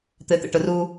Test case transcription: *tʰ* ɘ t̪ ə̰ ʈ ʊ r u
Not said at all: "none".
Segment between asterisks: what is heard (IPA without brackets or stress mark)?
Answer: t̪